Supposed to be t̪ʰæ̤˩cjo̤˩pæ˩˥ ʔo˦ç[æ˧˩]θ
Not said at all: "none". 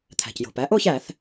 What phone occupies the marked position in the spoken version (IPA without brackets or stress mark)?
æ˧˩˧